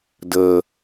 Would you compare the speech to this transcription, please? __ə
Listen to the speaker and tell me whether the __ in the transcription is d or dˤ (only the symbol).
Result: d